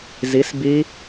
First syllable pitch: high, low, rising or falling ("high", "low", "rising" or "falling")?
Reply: rising